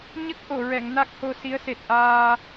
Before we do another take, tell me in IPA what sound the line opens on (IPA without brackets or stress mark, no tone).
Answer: ɲ